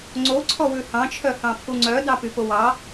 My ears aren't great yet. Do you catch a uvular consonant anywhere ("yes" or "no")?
no